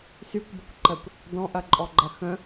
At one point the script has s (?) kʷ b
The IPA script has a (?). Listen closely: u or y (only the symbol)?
y